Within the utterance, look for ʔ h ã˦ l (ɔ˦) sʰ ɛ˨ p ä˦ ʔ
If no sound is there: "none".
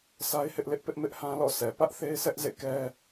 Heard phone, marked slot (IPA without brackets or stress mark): ɔ̰˦˨